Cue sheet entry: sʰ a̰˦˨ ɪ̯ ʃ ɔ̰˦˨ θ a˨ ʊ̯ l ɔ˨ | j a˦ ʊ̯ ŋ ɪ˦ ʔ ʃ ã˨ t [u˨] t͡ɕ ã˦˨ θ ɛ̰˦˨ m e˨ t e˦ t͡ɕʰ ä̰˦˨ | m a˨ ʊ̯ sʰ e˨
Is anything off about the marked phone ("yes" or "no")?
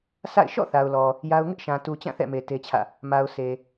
no